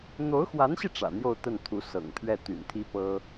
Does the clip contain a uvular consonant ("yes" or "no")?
no